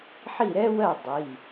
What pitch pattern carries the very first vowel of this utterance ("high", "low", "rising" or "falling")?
falling